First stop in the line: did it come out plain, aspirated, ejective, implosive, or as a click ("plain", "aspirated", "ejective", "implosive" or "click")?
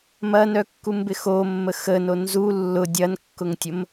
plain